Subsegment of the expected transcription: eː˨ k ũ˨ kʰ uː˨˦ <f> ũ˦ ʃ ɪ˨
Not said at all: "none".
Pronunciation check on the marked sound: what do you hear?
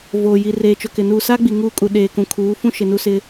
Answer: f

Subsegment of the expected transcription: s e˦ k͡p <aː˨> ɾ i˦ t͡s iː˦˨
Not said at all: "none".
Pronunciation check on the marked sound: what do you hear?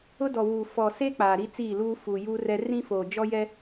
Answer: aː˨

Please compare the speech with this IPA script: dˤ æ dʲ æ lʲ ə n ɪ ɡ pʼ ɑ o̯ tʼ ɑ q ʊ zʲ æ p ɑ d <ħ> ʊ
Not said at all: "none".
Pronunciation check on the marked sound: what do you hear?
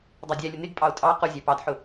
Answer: ħ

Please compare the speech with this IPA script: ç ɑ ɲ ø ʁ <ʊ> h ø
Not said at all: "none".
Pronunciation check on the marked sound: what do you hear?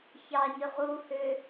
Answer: u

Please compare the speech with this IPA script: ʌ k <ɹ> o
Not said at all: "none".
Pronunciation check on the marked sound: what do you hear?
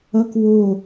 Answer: w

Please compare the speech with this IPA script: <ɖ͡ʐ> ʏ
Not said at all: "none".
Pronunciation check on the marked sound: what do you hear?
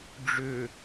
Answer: ɖ͡ʐ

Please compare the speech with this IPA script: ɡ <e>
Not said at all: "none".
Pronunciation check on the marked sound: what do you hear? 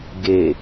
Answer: e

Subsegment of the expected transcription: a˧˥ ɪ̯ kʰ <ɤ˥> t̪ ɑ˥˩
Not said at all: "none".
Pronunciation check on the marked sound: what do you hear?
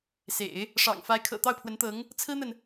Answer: ɤ̰˨˩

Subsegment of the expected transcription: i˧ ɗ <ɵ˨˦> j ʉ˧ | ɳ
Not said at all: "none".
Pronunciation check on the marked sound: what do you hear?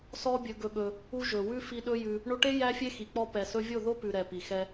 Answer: ɵ˦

